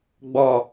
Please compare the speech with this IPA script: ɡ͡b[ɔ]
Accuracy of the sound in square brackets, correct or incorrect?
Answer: correct